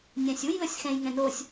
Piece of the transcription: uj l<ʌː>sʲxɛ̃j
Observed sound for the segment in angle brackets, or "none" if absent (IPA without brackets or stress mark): ʌ